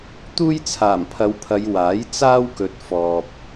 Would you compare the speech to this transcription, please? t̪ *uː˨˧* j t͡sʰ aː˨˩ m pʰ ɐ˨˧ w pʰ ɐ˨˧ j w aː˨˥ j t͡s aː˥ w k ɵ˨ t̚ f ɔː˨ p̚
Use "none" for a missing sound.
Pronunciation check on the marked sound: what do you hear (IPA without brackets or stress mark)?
uː˥